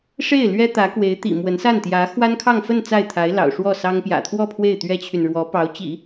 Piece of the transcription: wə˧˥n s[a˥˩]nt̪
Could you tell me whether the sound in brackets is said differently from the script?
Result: no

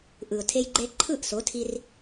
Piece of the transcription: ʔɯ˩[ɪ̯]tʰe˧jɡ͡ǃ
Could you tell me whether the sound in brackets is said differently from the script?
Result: yes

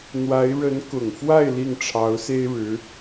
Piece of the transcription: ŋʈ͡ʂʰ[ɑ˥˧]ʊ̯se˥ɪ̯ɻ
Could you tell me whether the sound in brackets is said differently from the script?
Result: yes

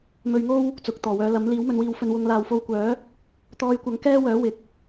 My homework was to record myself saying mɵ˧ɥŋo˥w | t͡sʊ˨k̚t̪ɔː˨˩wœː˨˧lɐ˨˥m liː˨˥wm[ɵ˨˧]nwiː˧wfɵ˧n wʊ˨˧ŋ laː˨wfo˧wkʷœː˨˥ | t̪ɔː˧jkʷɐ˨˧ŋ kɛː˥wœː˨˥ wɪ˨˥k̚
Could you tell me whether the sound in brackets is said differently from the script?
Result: no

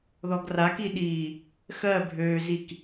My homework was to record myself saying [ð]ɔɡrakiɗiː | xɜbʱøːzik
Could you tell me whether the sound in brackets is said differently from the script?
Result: no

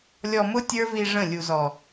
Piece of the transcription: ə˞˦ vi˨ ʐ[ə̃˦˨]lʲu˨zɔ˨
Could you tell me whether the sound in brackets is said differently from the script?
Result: no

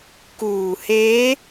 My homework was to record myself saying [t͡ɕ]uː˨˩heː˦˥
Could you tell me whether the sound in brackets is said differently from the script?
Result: yes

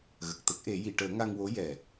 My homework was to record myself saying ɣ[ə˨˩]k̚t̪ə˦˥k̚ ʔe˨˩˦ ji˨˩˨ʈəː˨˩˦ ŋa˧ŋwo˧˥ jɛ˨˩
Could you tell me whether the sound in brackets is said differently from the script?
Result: no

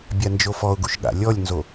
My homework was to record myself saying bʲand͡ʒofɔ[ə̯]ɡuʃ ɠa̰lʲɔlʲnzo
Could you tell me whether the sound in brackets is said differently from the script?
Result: yes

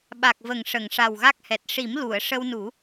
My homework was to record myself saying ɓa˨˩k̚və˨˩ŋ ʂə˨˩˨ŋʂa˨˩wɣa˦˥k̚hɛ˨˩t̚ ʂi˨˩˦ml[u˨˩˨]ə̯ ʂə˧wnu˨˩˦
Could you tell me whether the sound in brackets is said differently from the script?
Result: no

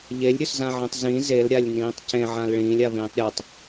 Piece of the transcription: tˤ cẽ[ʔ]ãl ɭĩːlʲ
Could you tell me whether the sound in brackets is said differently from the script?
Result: yes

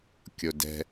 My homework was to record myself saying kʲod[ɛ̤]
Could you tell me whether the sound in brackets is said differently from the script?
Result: no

